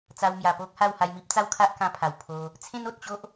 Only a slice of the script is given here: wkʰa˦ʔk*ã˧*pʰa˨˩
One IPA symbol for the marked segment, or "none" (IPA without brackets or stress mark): ã˧